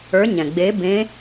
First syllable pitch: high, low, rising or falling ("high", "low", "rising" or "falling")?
rising